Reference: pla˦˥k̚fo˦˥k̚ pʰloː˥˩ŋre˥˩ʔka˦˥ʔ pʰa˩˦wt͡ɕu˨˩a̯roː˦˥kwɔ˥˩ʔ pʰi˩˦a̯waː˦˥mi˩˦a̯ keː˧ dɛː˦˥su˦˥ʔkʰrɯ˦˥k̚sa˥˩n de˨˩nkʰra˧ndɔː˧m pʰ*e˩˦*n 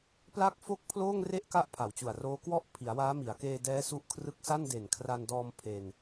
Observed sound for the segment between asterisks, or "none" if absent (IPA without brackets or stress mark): e˧